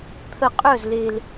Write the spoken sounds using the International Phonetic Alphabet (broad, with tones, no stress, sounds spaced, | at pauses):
t̪ʰ ə˧˩ qʼ œ˥˩ z l e˧˩ l